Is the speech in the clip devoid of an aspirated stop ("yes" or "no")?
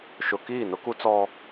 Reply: yes